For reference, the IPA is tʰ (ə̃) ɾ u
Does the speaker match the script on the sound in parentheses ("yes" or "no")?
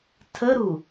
no